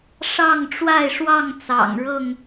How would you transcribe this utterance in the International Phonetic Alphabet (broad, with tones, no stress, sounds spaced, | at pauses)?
ʂ ɑ˥˨ ŋ ʈ͡ʂ w a˥˨ ɪ̯ ʂ w ɑ˥˨ ŋ t͡s ɑ̰˨˩ ŋ ɻ ɤ˥˨ ŋ